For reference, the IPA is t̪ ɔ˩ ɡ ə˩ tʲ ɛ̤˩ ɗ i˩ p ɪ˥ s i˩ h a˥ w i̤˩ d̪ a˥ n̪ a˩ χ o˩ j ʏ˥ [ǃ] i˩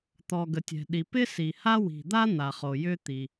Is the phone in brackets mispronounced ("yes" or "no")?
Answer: yes